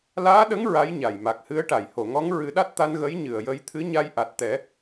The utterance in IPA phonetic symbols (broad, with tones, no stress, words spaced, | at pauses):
laː˧˥ɗə˧˥ŋ ɹa˧˥jɲa˨˩jma˨˩k̚hɨ˧˥ə̯ ʈa˨˩˨jho˨˩˨ŋɔ˧˥ŋ ɹɨ˨˩˦ɗa˦˥t̚t̪a˧n ɣə˧˥j ɲɨ˨˩ə̯jə˧jt̪ʰɨ˧˥ ɲa˧jʔa˨˩t̚t̪ɛ˨˩˦